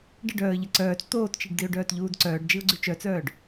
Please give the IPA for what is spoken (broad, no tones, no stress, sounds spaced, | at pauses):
ɖ ə ɖ œː ə̯ ʎ ə ǀ œː t͡s t̪ oː t t͡ʃ i ɖ d i ʊ̯ ɖ œː t ʎ uː d ǀ œː ɖ d͡ʒ i ʊ̯ ɡ͡ǀ y t͡ʃ œ t͡s œː ɖ